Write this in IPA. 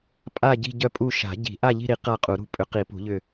pʼ a˦˨ ɟ i̤˦˨ ɟ œ˦˨ pʼ u˦˨ ʃ a̤˨˩˦ ɟ i̤˨˩˦ ʔ a˦˨ ʎ i̤˦˨ ɾ i˨˩˦ q a˦˨ qʼ u˨˩˦ ɾ ṳ˦˨ pʼ ʏ˨˩˦ q i˨˩˦ p ṳ˨˩˦ ʎ ʏ˦˨

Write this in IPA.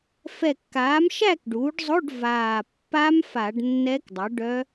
f ɛ˧˩ kː aː˩˥ m ʃ æ˥˨ k ɖ uː˩˥ ɖ zˤ o˧˥˧ ɖ v aː˧˩ pː a˦˥ m f a˧˩˧ ɖ nː ɛ˦˥ k dˤ u˩˥ ɖ œ˦˥

